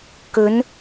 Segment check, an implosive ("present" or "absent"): absent